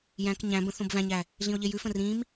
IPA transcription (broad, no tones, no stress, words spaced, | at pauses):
jæ̃k ɲæ̃bə̃ θõbvæ̃ɲæ | ɮĩo̯ʎejʉfə̃ rĩm